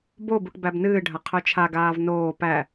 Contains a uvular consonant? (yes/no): yes